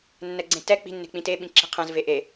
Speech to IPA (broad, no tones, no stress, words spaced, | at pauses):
nːɛɡ͡ǀẽtɛ k͡pi̤nːe̤k͡pĩt e ɓĩǁi̤qʰɛ̃zve ʔe